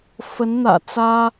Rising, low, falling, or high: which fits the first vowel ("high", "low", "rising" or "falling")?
rising